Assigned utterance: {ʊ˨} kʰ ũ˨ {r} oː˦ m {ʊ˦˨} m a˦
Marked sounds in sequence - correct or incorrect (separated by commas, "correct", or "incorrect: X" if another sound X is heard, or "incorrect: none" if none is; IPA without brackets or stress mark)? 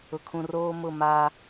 correct, correct, correct